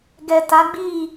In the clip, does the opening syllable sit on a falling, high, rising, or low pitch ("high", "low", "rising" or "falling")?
low